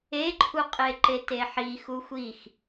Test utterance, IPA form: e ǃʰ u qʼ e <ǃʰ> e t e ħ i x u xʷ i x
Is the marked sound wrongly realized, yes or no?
yes